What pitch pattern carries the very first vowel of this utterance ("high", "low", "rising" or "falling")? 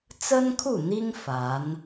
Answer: high